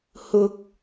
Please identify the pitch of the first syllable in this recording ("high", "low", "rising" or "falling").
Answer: high